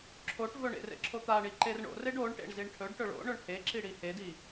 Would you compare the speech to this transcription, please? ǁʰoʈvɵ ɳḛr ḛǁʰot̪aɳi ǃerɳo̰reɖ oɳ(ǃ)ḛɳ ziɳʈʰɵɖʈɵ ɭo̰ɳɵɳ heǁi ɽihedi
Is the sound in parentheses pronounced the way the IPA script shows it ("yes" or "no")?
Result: no